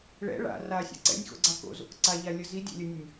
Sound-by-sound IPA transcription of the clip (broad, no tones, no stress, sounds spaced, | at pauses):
ɭ ɛ̰ ɭ a̰ r a sʲ a̰ ǀ ɛ̰ nʲ x o̰ ɡ͡ǀ a k o̰ z o̰ k ǀ a ʎ a lʲ ɐ z i dʲ a̰ lʲ ɐ nʲ ɐ nʲ